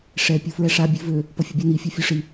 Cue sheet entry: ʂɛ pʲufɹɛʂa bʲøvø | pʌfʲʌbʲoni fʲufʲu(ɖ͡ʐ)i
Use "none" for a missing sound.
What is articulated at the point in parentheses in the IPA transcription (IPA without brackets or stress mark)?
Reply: ʂ